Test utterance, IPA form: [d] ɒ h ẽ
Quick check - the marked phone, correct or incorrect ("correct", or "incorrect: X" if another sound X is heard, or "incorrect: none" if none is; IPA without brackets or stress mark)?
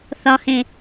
incorrect: θ